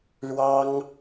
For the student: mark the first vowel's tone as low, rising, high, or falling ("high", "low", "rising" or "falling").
high